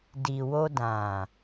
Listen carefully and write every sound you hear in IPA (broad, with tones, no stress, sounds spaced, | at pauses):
d i˨ w o˧ d ã˨